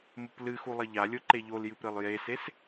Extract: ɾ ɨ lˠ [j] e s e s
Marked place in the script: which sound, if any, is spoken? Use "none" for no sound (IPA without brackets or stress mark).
j